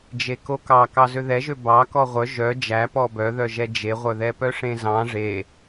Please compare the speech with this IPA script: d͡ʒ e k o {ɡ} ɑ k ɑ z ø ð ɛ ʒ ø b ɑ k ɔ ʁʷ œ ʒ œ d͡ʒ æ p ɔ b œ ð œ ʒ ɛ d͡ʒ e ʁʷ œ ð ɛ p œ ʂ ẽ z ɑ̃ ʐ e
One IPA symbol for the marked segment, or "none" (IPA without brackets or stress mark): k